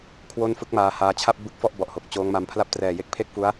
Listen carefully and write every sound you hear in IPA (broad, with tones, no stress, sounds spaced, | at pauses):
kʰ w o˥˩ n f ɯ˦˥ k̚ m aː˧ h aː˧ t͡ɕʰ a˥˩ p̚ b ɯ˦˥ k̚ f ɔ˥˩ ʔ b ɔ˨˩ ʔ h o˨˩ k̚ t͡ɕ oː˦˥ ŋ m a˧ m pʰ l a˥˩ p̚ t r ɛː˨˩ j e˦˥ k̚ pʰ e˥˩ k̚ f u˦˥ a̯